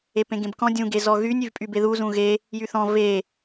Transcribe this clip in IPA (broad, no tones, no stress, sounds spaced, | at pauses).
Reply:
e p ẽ ɡ ẽ b k ɔ̃ dʲ ũ ɡ e z ɔ ɣ y nʲ y v pʼ y b e ð u z ũ ɣ e | j y θ ɔ̃ v e